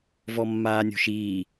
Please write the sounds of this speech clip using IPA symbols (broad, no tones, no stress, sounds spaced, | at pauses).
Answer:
v ɔ mː aː nʲ o̤ ʃ iː